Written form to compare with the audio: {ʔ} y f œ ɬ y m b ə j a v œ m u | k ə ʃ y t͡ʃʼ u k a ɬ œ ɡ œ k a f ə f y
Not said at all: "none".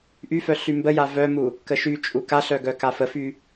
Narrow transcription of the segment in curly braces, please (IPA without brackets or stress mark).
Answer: ʔ